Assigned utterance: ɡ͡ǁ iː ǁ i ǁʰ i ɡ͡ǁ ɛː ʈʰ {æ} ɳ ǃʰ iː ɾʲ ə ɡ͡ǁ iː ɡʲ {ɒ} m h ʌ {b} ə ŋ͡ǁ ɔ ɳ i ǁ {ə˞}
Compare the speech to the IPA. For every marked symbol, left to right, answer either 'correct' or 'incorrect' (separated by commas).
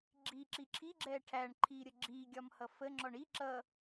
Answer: correct, correct, incorrect, incorrect